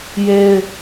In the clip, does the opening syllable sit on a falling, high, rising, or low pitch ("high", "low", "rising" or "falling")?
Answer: high